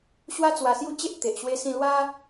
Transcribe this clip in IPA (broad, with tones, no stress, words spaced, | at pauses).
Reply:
ɕwa˦t͡swa˨˩sju˦t͡ɕe˦ʔ t̪e˨ʔɕwe˦sĩ˥˧ lwa˦